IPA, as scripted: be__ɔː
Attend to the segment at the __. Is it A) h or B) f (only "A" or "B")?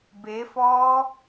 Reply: B